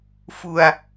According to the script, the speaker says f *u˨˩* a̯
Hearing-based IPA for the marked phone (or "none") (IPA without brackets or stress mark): u˧